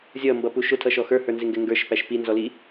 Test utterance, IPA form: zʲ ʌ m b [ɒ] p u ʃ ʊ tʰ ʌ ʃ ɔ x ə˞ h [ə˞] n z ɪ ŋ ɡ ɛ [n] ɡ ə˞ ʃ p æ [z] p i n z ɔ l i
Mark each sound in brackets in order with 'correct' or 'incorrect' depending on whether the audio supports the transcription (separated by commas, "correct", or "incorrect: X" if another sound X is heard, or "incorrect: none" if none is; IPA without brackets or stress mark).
incorrect: ʌ, correct, incorrect: ŋ, incorrect: ʃ